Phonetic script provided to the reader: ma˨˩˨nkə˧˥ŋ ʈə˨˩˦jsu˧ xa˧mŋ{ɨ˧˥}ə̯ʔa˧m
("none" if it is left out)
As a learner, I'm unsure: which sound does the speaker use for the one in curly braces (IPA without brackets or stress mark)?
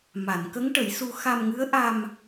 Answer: ɨ˧˥